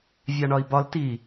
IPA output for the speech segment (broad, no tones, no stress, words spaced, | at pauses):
vʲɑɳɒi̯bɒl ti